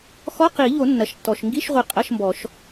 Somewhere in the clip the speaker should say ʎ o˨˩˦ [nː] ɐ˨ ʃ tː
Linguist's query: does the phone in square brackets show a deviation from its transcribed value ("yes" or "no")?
no